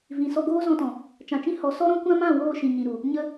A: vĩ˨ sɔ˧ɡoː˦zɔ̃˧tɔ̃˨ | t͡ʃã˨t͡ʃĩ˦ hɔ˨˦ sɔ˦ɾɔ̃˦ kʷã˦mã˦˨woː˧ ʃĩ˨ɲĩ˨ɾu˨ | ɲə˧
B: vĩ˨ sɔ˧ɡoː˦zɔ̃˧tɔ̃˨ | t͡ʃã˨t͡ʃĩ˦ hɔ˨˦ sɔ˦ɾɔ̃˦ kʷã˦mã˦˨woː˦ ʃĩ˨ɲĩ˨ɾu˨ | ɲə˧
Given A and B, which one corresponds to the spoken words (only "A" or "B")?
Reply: A